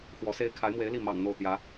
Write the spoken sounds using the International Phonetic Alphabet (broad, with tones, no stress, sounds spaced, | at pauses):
x w ɔ˧˥ s e˥ ɪ̯ kʰ a˧˥ ɪ̯ m w e˧˥ ɪ̯ l i˥˩ m ɑ̰˨˩ ŋ n̪ o˥˩ ʊ̯ t̪ j ä˧˥